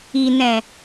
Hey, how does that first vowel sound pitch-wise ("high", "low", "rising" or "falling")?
low